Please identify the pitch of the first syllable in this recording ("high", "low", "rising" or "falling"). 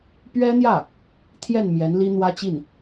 high